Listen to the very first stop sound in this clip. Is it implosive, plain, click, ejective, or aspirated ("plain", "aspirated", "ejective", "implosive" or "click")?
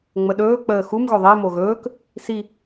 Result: implosive